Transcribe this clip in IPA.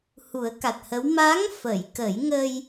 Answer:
h u˨˩˦ ə̯ k a˨˩ t̚ h ə˧˥ w m a˧˥ ŋ f ə˨˩˨ j k ə˨˩˦ j ŋ ə˧ j

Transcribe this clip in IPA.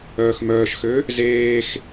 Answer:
œː x m œː ʃ x ø | z eː x

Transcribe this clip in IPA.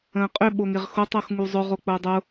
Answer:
ə̃ː qʼ ʏ ɓ o ŋ ɪ ʁ x o tˤ o x ŋ u zˤ ʊ ʁ o k͡p ʊː dˤ ʊ

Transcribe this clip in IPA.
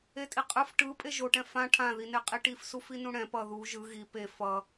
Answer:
e tʼ i qʼ ɯ f ʈ ɯ pʼ e ʒ o ʈ ɛ̃ f ã ʈʰ ã ð i n e qʼ i ʈ i f s u f i n ũ ɽ ɛ̃ p ʌ ð u ʒ ɯ ɣ i p e f ʌ

